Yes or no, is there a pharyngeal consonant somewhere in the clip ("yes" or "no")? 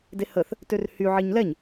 yes